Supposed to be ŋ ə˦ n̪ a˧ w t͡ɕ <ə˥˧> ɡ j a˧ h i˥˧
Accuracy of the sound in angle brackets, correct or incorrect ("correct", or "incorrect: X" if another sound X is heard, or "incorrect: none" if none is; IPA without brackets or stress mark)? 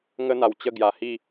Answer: correct